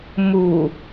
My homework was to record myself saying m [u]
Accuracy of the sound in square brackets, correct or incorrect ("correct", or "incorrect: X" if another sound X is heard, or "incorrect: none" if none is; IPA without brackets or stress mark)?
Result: correct